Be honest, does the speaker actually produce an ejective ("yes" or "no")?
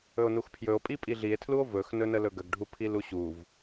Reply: yes